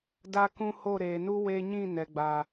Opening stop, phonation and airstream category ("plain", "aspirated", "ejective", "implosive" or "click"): plain